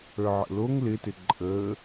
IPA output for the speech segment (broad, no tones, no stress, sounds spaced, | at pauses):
ə˞ ʕ ə̰ l o ŋ l ɪ t ɪ ǃʼ ə